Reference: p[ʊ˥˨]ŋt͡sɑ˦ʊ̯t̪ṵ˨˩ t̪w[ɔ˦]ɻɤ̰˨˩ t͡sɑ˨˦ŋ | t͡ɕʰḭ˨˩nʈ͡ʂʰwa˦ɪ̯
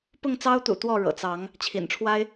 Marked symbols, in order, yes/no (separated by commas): yes, no